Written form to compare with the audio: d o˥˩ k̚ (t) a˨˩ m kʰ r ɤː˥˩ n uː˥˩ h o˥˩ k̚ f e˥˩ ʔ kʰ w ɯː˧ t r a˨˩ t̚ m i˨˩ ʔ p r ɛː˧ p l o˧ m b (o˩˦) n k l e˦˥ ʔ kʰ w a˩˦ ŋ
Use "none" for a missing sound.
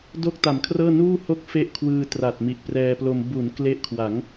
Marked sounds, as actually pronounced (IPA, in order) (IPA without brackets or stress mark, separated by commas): t, u˩˦